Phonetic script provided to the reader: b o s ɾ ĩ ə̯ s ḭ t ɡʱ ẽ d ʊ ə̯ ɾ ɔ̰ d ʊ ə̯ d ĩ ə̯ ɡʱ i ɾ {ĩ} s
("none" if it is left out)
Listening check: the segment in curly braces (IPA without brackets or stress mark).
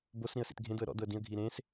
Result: ẽ